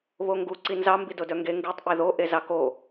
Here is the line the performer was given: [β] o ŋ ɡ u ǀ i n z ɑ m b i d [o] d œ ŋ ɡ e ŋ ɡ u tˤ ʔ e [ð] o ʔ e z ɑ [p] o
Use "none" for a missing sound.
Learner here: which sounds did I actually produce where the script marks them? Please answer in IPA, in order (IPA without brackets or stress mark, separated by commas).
β, o, ð, k